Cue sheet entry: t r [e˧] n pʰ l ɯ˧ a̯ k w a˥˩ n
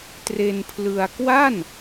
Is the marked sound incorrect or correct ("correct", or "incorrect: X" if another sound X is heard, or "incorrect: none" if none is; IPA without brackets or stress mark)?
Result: correct